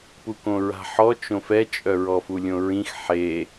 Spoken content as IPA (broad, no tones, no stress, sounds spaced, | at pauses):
p u k õ ɹ a̤ ħ ɔ t͡ʃ õ f ɛ t͡ʃʼ œ ɹ ɔ f u lʲ õ ɹ ĩ x ħ e